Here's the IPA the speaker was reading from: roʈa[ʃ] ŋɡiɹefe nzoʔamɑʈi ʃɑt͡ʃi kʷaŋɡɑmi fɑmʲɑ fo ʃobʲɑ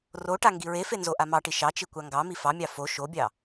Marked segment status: incorrect: none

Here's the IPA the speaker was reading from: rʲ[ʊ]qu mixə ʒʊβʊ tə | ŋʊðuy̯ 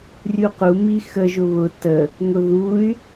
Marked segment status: incorrect: u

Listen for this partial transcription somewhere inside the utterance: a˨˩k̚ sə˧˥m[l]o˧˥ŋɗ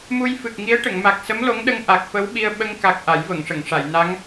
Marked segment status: correct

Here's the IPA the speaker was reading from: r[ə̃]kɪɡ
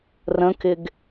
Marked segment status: correct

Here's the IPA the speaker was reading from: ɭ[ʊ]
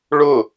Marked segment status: correct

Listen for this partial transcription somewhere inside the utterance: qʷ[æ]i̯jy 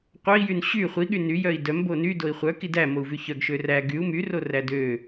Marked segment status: incorrect: œ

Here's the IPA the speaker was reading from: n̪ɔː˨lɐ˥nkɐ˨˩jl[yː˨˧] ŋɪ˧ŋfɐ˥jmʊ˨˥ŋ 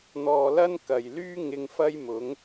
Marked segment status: incorrect: yː˥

